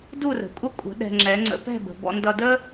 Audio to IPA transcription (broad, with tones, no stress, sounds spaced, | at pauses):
d u˥˩ r ə̤˩ kʷʼ ə˥˩ kʷʼ ə̤˩˥ ɗ ɛ̤˧ ŋ͡ǁ ɛ˩˥ ŋ͡ǀ ə̰˧ p ɛ̤˥˩ b ə̤˩ b ɔ̰˧ n d ʌ˧ d ə˥